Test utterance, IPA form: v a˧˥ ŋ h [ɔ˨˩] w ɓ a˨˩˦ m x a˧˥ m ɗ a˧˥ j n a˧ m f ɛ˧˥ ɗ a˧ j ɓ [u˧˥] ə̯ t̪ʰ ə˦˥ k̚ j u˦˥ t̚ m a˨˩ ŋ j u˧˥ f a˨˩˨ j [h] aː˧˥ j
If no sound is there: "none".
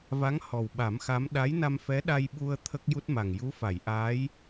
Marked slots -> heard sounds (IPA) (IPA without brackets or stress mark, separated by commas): ɔ˨˩, u˧, ʔ